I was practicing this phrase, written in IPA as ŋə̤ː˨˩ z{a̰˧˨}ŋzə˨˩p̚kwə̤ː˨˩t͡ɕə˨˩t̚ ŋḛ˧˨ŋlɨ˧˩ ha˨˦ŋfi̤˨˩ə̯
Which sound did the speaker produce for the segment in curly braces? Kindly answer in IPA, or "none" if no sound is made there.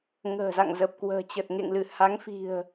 a̰˧˨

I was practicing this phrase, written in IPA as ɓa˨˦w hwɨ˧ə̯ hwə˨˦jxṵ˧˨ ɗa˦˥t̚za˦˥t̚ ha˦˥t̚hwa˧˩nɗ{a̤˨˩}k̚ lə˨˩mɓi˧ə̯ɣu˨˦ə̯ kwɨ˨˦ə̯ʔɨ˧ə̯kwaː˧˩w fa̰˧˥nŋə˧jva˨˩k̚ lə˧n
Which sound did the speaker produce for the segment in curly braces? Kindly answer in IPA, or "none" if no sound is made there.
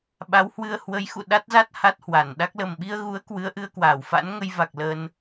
a˦˥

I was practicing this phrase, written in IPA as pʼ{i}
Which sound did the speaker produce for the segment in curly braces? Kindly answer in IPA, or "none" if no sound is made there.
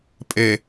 e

